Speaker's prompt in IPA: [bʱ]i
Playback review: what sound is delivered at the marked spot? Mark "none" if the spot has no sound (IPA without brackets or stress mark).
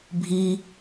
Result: bʱ